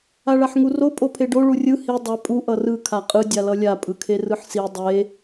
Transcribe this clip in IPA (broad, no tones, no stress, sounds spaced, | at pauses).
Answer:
a ɭ a ħ ŋ u r o pʼ o pʰ e ɖ o ɭ u rʲ ɯ h i dˤ ɛ pʼ u ʔ ʌ r ɯ kʰ a qʼ ɯ dʲ a l ʌ lʲ a pʼ ɯ kʰ e r ɯ ħ s i dˤ e